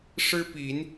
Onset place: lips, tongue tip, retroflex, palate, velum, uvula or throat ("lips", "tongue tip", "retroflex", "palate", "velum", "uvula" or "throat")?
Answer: retroflex